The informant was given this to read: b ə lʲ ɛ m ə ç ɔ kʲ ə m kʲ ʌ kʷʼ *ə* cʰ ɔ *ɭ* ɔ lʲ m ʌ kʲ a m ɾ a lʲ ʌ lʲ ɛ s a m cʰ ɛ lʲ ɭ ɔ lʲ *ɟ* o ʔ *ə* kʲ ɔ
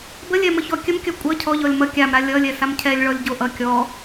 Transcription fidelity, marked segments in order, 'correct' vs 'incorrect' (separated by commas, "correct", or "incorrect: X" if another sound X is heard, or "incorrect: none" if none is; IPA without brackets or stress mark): incorrect: ʌ, incorrect: ʎ, correct, incorrect: ʌ